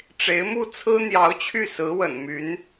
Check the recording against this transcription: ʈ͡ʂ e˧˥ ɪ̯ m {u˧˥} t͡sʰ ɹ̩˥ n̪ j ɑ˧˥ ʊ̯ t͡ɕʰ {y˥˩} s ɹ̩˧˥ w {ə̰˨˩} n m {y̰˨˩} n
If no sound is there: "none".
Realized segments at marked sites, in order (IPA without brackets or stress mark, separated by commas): u˥˩, y˥˩, ə̰˨˩, y˧˥